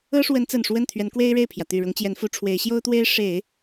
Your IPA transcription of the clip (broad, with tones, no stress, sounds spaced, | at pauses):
ɤ˥ ʂ w ə˧˥ n t͡s ə˨˩ n ʂ w ə˥˩ n t̪ʰ ɥ ɛ˧˥ n k w e˥ ɪ̯ ɻ e˥˩ ɪ̯ pʰ j ä˩ t̪ y˨˩ ɻ ʊ˧˥ ŋ t͡ɕ j ɛ˧˥ n f u˧˥ ʈ͡ʂʰ w e˧˥ ɪ̯ ɕ j o˥ ʊ̯ t̪ w e˥ ɪ̯ ʂ e˨˩˦ ɪ̯